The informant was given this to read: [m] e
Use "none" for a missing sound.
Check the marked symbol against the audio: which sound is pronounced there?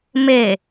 m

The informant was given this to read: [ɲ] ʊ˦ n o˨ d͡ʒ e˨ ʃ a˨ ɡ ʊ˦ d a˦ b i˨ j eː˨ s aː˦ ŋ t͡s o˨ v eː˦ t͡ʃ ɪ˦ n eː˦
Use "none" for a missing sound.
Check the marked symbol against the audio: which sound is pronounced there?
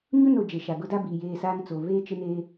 ɲ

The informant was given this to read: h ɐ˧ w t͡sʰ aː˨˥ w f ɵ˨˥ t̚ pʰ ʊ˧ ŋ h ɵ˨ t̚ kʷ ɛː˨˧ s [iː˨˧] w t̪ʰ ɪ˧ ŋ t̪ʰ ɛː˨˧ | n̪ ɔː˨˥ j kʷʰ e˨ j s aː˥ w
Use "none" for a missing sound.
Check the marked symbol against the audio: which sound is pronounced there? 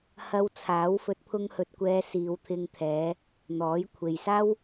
iː˨˧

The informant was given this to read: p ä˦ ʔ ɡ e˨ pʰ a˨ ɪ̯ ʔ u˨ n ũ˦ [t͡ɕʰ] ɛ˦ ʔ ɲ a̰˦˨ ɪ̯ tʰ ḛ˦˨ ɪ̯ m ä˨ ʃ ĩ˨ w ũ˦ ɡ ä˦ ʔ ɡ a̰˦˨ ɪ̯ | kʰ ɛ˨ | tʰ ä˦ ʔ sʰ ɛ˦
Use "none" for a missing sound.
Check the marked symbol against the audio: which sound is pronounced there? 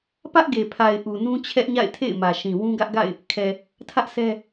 t͡ɕʰ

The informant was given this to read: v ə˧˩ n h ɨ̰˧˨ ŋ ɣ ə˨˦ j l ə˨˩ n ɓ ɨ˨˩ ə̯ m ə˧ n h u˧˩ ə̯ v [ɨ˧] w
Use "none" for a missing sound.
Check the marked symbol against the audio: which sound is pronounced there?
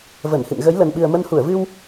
ɨ˧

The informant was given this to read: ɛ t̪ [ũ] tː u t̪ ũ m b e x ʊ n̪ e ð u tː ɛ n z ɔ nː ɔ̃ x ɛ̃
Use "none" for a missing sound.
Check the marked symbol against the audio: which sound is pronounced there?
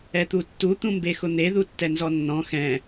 u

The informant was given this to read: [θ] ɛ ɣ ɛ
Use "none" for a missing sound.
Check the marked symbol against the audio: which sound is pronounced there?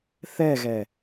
θ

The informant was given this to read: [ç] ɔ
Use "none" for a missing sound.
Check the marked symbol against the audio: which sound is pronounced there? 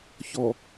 ç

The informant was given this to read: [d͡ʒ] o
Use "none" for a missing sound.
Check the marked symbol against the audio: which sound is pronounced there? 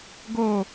ɡ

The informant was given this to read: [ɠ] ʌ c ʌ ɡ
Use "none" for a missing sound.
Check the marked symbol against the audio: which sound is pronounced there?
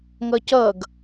ŋ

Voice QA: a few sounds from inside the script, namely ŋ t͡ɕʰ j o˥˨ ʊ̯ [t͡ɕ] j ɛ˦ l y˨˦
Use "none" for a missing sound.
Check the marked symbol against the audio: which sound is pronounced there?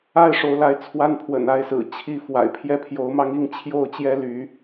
t͡ɕ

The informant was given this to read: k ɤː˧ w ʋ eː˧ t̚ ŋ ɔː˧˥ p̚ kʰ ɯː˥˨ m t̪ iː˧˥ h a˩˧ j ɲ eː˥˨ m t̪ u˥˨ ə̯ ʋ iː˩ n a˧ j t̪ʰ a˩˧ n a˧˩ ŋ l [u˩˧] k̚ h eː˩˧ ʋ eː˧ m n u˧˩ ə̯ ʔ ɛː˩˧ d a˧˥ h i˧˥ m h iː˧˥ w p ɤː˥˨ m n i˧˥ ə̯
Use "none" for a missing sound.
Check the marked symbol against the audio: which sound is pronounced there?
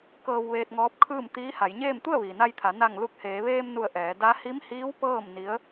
u˧˩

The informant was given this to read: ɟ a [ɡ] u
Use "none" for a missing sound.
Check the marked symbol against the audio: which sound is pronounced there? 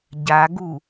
ɡ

